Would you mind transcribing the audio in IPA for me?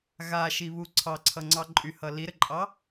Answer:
ɣ a ʃ i β u ǀʰ ɑ ǀʰ ʌ ŋ͡ǀ ɑ ǃʼ y h ʌ l i ɾ ɘ ǃʼ ɑ

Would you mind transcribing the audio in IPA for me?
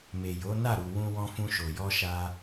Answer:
m e˨ j o˨˦ n a˦˨ ɾ u˨ w ũ˧ w ɔ̃˧ f ũ˧ ʃ o˨ j ɔ˧ ʃ a˧

